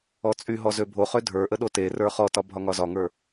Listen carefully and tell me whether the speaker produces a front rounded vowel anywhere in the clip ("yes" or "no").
yes